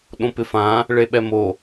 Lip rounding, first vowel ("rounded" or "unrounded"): rounded